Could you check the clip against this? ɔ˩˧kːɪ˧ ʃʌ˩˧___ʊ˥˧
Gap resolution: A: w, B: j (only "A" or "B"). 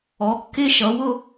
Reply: A